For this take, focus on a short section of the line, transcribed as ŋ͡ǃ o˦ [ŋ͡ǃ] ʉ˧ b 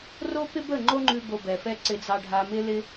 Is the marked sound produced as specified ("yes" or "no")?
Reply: yes